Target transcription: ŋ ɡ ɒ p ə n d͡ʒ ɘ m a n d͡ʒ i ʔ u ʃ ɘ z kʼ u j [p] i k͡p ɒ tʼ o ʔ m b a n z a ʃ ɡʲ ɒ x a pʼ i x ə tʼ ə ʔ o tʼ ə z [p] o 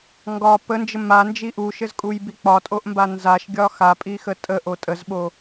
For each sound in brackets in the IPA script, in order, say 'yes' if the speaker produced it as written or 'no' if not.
no, no

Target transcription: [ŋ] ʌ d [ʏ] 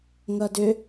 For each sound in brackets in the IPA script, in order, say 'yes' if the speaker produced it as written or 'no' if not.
yes, yes

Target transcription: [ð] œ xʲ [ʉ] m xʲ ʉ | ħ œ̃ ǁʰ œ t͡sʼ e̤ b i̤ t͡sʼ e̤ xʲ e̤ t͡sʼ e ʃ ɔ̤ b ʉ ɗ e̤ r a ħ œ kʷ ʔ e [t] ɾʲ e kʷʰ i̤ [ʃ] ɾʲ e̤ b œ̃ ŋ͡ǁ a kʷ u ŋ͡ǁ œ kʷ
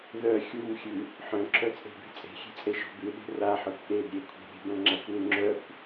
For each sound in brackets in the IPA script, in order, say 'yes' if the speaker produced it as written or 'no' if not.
yes, no, no, no

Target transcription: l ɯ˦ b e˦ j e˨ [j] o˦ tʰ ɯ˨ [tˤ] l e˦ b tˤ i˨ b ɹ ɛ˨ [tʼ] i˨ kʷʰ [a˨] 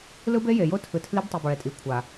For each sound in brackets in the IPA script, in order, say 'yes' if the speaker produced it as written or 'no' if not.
yes, no, yes, yes

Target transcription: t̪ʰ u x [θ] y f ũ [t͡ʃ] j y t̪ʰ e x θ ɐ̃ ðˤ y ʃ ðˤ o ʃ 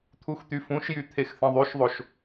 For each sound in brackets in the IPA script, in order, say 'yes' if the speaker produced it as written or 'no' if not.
no, no

